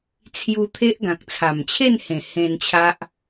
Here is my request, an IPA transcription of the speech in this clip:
t͡sʰ j u˧ t̪ʰ e˦ ʔ ɡ ã˨ k̚ t͡sʰ a˨˩ m t͡ɕʰ e˥˧ n h ẽ˨˩ h ẽ˧ n t͡ɕʰ a˦ ʔ

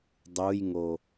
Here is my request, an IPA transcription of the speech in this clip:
dˤ u j ŋ o

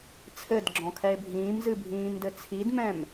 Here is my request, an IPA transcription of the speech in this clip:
t͡sʰ ɘ d ɡ͡ǁ ɔ̃ kʰ ɛ e̯ bʱ ĩː m z ɨ bʱ ĩː m d ɘ t͡sʰ i d m ɛ̃ m

